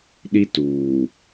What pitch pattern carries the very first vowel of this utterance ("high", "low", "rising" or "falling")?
high